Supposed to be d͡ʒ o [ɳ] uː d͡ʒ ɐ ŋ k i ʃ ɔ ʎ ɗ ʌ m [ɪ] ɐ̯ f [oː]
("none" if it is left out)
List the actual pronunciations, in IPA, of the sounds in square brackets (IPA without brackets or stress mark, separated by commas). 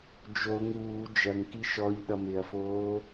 ŋ, ɪ, oː